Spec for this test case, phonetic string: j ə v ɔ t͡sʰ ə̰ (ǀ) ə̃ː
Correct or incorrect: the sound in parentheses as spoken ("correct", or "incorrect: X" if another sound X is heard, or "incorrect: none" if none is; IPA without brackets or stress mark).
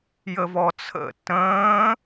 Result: incorrect: t